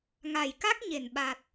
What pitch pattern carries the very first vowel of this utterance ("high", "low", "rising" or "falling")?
low